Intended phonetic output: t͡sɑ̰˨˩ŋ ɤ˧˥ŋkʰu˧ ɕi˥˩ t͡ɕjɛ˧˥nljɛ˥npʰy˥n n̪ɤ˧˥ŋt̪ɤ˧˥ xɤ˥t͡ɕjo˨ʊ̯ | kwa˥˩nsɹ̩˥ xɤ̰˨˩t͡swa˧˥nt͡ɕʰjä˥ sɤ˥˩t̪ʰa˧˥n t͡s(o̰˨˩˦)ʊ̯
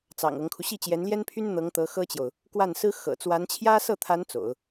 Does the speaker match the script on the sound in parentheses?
yes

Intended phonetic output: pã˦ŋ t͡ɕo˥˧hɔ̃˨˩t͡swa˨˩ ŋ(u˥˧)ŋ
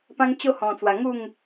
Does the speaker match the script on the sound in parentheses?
yes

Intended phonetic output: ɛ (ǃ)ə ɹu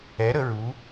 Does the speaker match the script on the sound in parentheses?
no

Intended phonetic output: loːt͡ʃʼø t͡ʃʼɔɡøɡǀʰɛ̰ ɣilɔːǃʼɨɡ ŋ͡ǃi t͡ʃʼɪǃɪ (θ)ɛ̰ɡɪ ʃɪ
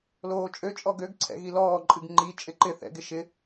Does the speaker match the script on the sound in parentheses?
yes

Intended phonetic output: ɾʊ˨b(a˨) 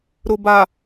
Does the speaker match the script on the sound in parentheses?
yes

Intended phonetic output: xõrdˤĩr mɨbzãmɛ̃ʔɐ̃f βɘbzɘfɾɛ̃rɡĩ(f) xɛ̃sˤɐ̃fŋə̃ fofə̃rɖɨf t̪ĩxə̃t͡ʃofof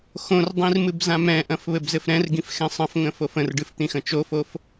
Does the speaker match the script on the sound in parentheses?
yes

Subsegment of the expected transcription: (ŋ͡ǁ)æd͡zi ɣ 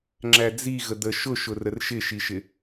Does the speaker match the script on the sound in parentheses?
yes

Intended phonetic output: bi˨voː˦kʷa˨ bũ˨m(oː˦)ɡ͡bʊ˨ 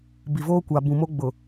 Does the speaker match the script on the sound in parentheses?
no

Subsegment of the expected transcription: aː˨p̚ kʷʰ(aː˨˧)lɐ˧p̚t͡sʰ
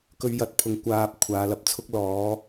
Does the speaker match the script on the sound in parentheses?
yes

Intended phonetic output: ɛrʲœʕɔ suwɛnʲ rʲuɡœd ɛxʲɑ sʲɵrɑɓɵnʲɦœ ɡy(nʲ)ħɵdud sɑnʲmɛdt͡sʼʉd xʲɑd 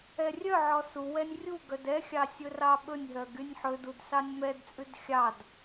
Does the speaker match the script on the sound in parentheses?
yes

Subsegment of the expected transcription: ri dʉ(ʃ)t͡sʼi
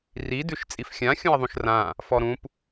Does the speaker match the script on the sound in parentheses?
yes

